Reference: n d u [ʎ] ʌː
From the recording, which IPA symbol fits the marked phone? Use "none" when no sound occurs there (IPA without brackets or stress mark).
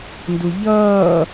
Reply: ʎ